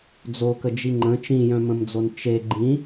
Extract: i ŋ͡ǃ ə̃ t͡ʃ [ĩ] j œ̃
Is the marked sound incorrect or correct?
correct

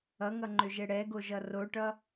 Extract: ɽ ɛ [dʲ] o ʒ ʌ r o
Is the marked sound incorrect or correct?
incorrect: ɡ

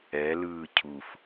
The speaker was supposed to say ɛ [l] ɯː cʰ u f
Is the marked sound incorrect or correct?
correct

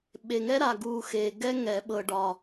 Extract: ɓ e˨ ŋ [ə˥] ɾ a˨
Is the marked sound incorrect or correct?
incorrect: ɛ˥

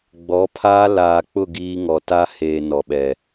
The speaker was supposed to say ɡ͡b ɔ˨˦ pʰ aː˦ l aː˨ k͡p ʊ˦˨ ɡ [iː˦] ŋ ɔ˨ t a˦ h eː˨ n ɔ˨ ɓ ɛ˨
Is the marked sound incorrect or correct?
correct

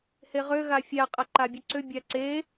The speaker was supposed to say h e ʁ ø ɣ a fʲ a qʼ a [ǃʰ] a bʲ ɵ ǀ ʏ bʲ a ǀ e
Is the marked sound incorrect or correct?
incorrect: ǃ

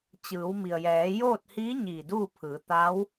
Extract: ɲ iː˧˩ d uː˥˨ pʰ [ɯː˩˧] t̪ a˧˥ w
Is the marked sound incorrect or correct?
correct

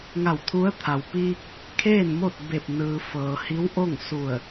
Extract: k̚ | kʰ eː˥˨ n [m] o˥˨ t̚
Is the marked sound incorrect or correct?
correct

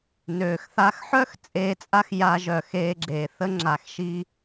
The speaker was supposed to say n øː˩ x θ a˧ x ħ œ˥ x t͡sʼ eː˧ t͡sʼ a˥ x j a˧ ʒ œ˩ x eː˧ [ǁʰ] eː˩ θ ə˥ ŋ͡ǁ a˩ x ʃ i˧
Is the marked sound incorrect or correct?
incorrect: ɡ͡ǁ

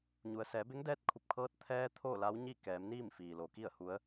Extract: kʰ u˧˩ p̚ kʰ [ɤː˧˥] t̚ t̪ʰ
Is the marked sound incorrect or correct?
correct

